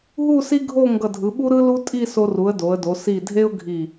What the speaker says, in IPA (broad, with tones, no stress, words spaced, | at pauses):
ɦu˥˧si˥ɡʱo˥˧ ŋɡʌ˧˩dʱɯ˩˧ɓu˥ ɾɯ˥lu˥tʼi˥˧ so˧ru˩˧ə̯ do˩˧ə̯do˩˧ si˧˩dʱe˥ʊ̯ɡʱi˧˩